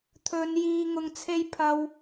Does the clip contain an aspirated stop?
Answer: yes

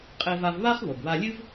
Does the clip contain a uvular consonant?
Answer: yes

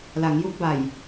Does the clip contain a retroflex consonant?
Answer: no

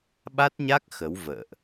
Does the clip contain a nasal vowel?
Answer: no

